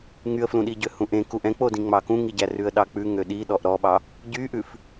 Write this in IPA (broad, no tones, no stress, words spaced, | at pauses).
ŋyə̯flũɗi ɟøhũʔẽ kuʔɛ̃k͡podĩ ŋ͡mɑkũŋiɟæ rʉə̯ɗɑk͡pʉ ŋøɗi ɗɔʔɾɔɓɑ | ɟyʔʉf